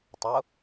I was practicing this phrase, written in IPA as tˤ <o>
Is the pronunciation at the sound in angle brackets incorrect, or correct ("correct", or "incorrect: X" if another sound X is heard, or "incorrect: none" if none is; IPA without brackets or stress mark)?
correct